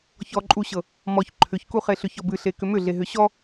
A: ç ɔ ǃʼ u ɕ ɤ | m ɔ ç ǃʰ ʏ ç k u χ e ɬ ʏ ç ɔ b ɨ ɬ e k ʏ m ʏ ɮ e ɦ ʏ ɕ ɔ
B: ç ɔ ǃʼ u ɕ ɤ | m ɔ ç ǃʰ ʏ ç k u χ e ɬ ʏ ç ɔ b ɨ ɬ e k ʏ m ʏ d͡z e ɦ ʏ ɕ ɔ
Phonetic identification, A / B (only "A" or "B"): A